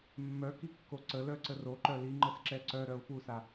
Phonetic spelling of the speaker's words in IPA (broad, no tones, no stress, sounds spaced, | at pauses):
mː œ k i kː o ǀ ə l œ ǀ ə r o ǃ œ l i ŋ͡ǃ ə s ǁ ɛ ǀ œ ɾ œ ʊ̯ f u s a